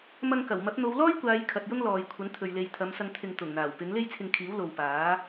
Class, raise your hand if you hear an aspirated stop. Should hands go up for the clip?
yes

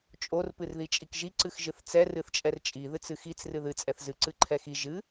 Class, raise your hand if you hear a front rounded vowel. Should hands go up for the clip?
no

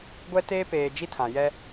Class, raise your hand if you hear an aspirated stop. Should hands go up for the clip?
yes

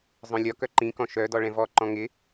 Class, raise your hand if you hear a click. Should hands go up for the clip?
yes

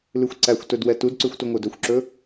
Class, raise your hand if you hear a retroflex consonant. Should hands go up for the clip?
no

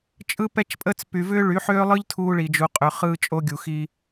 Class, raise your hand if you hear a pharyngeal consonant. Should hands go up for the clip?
yes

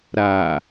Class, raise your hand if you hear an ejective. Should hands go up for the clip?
no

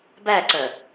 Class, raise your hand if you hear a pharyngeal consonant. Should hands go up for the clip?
no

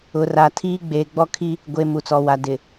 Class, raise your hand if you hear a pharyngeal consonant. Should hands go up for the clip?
no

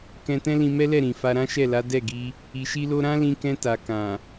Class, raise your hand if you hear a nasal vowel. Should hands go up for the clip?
yes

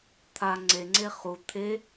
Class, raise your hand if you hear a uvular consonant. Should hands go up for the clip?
yes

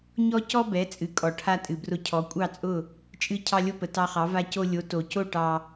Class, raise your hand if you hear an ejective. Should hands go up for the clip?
yes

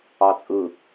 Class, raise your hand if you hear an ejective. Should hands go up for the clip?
yes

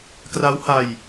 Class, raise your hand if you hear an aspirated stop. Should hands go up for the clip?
no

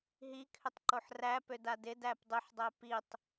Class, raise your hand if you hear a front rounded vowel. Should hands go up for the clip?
yes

